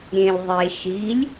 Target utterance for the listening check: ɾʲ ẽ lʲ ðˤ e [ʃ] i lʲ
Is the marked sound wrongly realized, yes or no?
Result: no